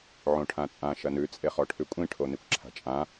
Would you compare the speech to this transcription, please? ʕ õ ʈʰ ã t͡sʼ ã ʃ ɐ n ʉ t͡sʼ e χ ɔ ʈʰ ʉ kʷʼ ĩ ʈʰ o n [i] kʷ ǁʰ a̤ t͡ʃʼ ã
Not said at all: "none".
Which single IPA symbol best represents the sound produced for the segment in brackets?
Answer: i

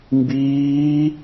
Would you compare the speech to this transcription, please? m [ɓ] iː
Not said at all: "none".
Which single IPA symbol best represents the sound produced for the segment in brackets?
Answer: b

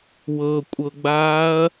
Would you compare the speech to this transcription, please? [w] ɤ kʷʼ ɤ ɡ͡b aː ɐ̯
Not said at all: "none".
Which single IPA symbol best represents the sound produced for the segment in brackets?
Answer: w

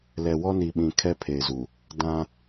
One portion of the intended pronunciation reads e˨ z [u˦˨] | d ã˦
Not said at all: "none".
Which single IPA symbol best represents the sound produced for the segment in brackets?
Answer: u˨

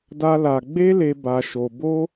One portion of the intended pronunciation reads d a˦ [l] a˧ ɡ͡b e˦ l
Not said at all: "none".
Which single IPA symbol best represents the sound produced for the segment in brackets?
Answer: l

